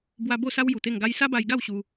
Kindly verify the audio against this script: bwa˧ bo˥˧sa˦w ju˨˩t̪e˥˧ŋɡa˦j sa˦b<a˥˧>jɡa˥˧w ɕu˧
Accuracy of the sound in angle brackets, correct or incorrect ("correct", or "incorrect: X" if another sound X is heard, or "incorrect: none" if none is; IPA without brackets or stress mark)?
incorrect: a˧